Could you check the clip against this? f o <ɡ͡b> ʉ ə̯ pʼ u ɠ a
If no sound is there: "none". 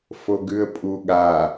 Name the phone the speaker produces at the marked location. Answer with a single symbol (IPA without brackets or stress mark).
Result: ɡ